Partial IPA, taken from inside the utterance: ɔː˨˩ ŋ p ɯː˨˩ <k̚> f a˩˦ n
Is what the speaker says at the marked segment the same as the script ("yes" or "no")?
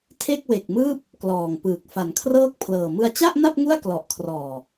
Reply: yes